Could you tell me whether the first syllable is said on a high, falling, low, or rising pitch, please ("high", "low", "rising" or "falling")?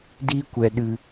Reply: high